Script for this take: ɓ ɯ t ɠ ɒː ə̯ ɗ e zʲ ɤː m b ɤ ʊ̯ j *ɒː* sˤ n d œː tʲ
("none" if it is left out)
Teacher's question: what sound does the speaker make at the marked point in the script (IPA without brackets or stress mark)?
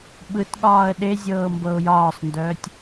ɒː